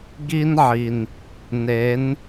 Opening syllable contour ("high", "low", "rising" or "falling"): high